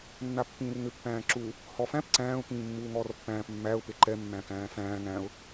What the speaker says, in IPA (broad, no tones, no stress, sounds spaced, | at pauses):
nː a pː ĩː r ŋ ʏ pː æ̃ː ǁ u | h ɔ f æ̃ p ǀ æ̃ː ʊ̯ k ĩː mː uː ŋ ɔː r pː æ̃ː p mː æ ʊ̯ p e ǃ ɛ mː æ̃ k æ̃ː f æ̃ː ŋ æ̃ ʊ̯